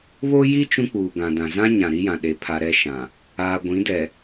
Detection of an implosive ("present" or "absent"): present